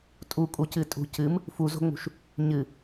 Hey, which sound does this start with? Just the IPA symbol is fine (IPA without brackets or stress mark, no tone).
tʼ